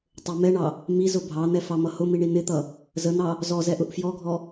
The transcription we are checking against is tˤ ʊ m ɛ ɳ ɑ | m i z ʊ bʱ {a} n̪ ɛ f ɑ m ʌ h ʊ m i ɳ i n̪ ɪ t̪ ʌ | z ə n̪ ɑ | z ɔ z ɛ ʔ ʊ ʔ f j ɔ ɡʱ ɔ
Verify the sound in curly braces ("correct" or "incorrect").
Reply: incorrect